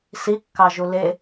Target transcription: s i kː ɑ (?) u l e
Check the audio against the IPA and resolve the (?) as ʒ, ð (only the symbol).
ʒ